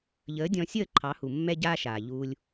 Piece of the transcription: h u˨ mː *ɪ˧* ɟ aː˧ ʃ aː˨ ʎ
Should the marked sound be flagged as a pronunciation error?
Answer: yes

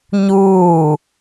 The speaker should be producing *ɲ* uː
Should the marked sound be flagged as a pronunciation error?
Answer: no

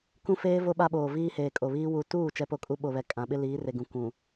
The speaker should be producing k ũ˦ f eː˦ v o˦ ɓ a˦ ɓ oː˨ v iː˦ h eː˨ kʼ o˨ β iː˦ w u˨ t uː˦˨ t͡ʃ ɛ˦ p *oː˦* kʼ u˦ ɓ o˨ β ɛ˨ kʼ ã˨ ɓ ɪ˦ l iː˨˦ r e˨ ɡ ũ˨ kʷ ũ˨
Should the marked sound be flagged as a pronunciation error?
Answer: yes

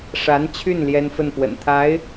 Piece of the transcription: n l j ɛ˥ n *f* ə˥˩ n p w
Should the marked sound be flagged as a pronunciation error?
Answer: no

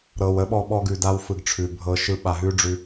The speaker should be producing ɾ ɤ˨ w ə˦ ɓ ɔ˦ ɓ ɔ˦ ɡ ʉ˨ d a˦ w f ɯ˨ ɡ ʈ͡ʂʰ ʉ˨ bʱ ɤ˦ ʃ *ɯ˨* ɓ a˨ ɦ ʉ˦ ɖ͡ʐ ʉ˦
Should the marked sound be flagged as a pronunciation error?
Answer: yes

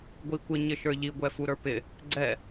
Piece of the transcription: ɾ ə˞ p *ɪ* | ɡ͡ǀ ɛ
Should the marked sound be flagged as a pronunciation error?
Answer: no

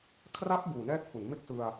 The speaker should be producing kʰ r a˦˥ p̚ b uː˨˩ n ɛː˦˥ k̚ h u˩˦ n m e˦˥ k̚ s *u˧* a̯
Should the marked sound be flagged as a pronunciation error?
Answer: yes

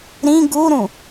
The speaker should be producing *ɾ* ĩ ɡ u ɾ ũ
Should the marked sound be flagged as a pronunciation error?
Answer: no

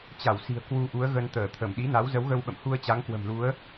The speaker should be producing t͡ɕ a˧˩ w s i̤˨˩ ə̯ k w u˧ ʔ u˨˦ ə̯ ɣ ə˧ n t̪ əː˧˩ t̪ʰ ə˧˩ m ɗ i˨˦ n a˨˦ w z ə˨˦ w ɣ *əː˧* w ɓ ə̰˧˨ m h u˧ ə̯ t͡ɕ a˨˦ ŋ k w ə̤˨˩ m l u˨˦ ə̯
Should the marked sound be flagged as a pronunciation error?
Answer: yes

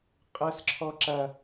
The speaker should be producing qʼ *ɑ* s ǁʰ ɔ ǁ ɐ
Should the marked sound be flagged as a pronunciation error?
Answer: yes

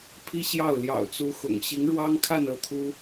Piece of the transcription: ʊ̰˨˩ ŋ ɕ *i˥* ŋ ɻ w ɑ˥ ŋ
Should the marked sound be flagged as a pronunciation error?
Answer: yes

